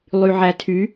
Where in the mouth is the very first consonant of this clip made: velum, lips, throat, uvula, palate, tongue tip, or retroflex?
tongue tip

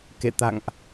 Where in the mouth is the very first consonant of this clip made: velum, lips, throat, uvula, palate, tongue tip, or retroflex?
velum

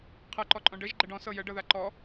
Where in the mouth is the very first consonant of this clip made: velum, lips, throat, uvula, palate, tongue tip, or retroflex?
uvula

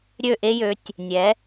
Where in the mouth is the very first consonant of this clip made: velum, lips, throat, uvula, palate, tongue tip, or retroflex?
tongue tip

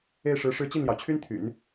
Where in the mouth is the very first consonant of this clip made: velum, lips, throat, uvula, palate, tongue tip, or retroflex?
retroflex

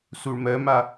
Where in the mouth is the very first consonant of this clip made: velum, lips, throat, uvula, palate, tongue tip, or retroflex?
tongue tip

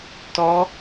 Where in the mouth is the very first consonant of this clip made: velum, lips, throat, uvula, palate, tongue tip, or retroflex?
tongue tip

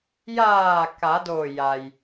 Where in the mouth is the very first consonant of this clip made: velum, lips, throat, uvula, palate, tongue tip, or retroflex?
palate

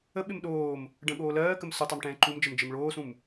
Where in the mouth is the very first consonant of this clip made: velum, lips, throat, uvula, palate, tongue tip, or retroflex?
lips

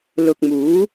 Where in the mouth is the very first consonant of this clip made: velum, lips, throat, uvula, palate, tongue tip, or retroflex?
tongue tip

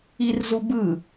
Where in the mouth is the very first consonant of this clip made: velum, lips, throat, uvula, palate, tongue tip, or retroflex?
tongue tip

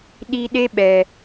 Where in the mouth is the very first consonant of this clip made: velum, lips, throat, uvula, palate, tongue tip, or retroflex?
tongue tip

